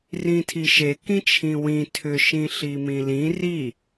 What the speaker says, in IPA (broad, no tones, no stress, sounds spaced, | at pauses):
r ĩ tʰ i ʃ e k ĩ t͡ʃʰ ĩ w ĩ tʰ ʏ ʃ ĩ ɬ i m ĩ l ĩ r i